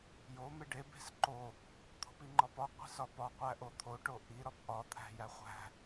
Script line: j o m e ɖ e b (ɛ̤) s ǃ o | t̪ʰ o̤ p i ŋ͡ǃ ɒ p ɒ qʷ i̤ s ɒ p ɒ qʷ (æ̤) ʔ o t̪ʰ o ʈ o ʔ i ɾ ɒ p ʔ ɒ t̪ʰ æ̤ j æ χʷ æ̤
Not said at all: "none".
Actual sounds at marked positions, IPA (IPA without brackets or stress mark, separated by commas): e̤, æ